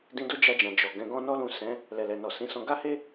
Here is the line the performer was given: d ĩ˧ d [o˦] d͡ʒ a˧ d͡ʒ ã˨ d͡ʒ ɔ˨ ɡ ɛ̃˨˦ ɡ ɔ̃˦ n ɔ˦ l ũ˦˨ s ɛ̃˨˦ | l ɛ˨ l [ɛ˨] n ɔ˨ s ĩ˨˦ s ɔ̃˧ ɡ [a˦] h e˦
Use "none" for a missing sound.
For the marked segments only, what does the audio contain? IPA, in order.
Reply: o˦, ɛ˨, a˦

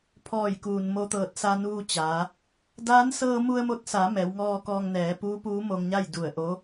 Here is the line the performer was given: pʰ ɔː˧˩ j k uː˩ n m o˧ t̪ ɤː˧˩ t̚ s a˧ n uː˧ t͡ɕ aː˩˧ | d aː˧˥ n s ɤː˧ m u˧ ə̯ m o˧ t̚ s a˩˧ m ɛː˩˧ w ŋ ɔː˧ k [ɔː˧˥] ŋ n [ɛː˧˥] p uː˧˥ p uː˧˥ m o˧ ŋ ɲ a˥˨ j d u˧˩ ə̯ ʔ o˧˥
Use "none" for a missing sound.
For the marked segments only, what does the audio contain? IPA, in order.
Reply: ɔː˧, ɛː˩˧

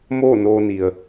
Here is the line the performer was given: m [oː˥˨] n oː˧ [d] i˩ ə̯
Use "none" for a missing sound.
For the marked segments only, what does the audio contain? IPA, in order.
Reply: oː˥˨, n

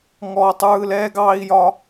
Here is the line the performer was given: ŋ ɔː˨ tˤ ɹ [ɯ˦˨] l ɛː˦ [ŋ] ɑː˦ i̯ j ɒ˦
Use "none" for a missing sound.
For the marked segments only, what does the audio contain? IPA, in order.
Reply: ɯ˨, ɡ

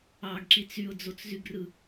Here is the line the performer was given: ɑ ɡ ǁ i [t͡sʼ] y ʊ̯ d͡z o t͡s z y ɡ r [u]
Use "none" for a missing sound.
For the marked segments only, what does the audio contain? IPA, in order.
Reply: t͡s, ɯ

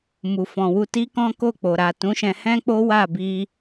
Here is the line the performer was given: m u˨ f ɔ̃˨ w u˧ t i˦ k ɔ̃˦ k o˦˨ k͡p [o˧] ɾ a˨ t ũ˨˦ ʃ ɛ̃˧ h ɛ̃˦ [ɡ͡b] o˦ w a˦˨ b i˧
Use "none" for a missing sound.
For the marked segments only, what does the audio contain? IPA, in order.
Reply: o˨, k͡p

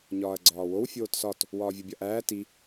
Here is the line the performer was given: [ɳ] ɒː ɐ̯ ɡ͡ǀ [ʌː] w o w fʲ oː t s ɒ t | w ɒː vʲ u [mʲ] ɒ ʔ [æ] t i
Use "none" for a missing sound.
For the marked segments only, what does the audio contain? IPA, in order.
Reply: ɲ, ɒː, bʲ, æː

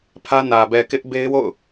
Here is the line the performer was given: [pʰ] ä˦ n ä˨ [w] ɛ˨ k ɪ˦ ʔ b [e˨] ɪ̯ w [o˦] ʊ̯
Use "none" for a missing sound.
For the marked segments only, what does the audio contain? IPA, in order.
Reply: pʰ, b, e˦, o̰˦˨

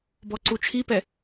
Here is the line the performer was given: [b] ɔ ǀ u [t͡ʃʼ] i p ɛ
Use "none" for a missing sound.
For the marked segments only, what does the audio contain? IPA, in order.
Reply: b, t͡ʃʰ

